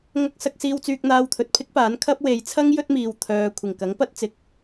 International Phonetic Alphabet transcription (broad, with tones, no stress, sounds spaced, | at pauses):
ŋ ɐ˥ k̚ s ɐ˧ k̚ s iː˧ w t͡s yː˧ k̚ n̪ aː˧ w t̪ʰ ɵ˨ t̚ pʰ ɪ˥ k̚ p aː˨˥ n kʰ ɐ˥ p̚ w e˨˧ j t͡sʰ ɐ˥ ŋ j ɵ˥ t̚ m iː˨ w t̪ʰ œː˨ kʷʰ ɪ˨˩ ŋ k ɐ˨˥ ŋ p ɐ˥ t̚ t͡s ɪ˨˥ k̚